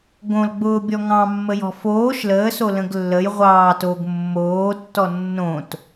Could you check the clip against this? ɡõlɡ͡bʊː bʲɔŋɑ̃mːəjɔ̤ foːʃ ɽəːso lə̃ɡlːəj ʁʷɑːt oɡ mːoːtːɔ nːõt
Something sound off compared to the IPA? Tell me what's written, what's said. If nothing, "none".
ɽ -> l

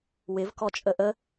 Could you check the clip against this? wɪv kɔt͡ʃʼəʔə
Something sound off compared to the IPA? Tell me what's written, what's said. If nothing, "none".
none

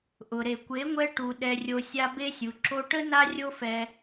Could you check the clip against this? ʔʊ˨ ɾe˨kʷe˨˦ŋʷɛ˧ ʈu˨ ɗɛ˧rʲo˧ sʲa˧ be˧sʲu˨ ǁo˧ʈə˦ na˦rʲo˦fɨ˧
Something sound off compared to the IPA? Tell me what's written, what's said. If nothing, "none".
ɨ˧ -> ɛ˧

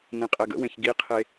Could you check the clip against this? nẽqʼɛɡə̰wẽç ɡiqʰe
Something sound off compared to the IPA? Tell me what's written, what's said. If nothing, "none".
none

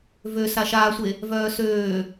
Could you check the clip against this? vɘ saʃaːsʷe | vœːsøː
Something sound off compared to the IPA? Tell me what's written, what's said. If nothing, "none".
ɘ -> ø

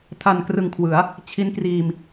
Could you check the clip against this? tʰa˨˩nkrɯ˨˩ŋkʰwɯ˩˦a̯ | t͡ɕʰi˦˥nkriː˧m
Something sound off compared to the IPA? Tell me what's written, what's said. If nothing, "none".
none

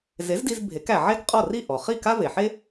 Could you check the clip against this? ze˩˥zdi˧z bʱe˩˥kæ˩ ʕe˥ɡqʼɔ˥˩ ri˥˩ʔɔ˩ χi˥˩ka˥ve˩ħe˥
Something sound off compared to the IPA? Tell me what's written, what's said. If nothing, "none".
none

